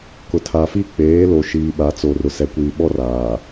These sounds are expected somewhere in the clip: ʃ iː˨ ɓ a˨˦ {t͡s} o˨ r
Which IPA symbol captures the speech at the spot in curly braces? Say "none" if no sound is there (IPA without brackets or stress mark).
t͡s